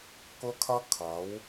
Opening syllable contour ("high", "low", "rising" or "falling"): high